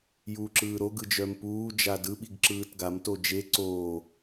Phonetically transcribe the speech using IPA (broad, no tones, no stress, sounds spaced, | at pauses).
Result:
j uː ǁ ɯː ɾ o ɡ ɯ d͡ʒ œ m p uː d͡ʒ a d ɯ ɓ i ɡ ǁ ɯː t ɡ a m t o d͡ʒ e ǀ oː